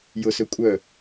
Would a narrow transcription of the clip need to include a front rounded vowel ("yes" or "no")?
yes